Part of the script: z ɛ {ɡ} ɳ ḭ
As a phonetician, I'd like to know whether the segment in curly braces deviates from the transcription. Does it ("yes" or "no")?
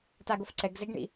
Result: no